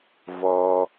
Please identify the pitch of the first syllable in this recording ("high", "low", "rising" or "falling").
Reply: high